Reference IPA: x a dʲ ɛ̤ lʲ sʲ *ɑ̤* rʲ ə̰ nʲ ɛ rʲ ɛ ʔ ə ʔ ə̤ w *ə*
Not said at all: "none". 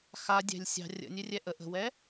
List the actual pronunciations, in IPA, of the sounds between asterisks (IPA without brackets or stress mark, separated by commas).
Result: ɑ̤, ɛ